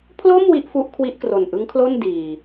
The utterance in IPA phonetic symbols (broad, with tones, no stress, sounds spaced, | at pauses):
pʰ l o˥˩ m w i˥˩ ʔ f u˦˥ ʔ kʰ w i˦˥ ʔ k r o˨˩ n ʔ ɯ˦˥ ŋ kʰ l o˥˩ n d iː˨˩